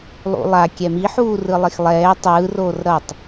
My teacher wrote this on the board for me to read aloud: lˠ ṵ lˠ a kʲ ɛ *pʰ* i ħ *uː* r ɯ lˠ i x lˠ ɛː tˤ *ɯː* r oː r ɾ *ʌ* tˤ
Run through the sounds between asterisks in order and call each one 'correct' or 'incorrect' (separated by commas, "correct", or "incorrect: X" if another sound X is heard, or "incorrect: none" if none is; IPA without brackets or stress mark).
incorrect: m, correct, correct, correct